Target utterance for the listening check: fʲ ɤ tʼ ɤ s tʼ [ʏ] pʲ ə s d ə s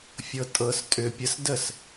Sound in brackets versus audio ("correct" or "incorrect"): correct